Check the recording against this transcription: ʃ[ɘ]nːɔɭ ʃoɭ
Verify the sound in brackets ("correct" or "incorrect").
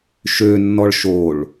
incorrect